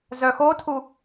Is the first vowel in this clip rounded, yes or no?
yes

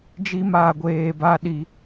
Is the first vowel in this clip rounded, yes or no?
no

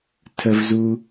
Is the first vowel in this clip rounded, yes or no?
no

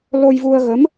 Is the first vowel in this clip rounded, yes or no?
yes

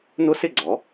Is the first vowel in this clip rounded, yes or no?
yes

